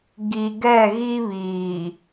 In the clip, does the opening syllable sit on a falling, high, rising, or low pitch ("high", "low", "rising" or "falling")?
low